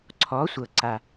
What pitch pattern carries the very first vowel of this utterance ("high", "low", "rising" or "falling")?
rising